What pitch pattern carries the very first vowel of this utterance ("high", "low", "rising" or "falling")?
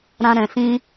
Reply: high